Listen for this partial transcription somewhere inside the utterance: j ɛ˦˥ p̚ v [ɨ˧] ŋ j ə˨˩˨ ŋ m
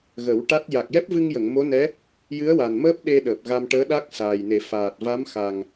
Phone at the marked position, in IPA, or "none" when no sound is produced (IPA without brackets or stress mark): ɨ˧